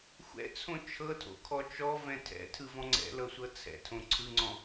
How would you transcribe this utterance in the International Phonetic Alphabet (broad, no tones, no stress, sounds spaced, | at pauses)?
xʷ ɛ̰ t͡sʰ õ t͡ʃʰ ɤ tʰ o̰ kʰ ɔ t͡ʃ ɔ v ɛ̃ tʰ ɛ̰ tʰ ɯ v ɔ̃ ŋ͡ǀ ɛ̰ l ɤ sʷ ɤ t͡sʰ ɛ̰ tʰ õ ǀʰ ɯ ŋ͡ǀ ɔ̃